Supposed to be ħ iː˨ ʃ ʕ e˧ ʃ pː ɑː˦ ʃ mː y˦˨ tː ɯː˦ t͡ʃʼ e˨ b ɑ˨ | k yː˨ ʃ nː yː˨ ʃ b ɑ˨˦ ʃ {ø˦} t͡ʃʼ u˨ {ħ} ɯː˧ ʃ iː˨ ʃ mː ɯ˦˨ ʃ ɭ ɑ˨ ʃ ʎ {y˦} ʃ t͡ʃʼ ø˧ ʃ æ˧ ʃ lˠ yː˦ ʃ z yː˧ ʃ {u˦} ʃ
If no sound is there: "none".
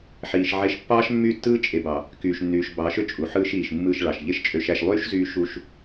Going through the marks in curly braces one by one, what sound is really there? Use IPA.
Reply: ø˦, ħ, e˦, u˦

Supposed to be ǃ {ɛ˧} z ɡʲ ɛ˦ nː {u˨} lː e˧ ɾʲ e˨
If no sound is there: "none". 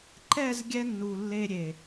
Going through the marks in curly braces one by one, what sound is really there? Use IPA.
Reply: ɛ˦˨, u˨

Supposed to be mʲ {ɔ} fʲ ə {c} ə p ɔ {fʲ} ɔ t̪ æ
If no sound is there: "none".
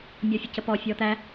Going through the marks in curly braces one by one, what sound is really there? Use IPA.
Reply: ɔ, c, fʲ

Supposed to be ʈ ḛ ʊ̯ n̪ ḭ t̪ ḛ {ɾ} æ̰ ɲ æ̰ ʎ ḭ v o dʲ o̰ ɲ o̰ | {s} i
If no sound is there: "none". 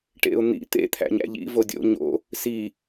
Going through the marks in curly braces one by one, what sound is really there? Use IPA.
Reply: t̪ʰ, s

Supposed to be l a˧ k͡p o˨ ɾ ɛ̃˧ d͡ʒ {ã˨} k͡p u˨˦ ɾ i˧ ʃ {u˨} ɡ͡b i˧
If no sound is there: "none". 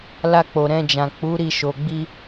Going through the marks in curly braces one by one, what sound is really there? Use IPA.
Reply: ã˨, o˨

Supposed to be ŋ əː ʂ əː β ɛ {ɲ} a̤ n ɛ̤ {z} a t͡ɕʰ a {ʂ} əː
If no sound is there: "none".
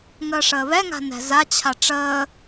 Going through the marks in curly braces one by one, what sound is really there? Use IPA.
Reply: ŋ, z, ʈ͡ʂ

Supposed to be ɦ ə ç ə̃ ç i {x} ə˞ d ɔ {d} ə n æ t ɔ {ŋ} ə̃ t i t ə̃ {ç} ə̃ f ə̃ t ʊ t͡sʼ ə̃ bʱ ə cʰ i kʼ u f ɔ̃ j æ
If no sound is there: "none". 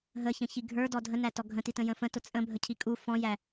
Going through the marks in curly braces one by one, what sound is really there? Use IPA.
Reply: ɡʱ, dʱ, ɡʱ, j

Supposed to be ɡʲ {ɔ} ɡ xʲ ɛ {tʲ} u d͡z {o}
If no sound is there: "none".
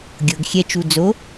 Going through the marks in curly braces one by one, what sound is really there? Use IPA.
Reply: ɤ, t͡ʃ, o

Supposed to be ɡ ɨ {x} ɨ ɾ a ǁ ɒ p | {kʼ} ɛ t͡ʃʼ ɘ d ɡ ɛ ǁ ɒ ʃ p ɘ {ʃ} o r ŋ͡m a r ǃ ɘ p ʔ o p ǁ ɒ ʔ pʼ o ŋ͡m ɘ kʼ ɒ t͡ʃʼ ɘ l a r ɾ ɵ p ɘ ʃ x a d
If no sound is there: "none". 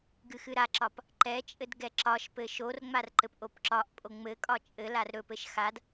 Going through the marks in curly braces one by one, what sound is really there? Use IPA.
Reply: x, ǃ, ʃ

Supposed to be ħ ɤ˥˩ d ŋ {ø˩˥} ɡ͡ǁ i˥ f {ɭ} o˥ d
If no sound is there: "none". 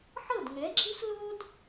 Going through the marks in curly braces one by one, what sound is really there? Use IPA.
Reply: ɛ˩˥, l

